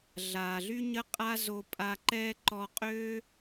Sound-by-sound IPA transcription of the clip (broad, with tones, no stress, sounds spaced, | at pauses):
ɮ aː˩ ɮ y˥ ɲ ə˥ qʼ a˥ z o˧ pʼ a˧ ǃ ɛː˥ ǃ ɔ˧ qʼ øː˥